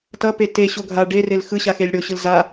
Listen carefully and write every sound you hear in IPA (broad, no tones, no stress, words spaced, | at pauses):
tʌ peteɕo ɡʱa ɖerel xɯ ɕaxelʲɽoɕɯl za